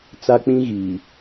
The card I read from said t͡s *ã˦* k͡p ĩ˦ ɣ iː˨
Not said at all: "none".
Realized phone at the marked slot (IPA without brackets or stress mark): a˦